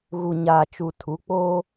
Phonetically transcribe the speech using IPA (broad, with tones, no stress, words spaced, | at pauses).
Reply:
ɣu˨ɲaː˨t͡ʃu˨ tʰu˨˦k͡poː˦